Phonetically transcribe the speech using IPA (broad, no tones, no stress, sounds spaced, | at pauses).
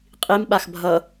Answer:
qʼ i m ɓ a x bʱ ʌ